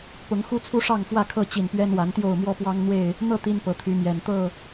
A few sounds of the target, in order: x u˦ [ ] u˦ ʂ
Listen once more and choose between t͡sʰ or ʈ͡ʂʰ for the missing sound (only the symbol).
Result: t͡sʰ